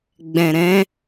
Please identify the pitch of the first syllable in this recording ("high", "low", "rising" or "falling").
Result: low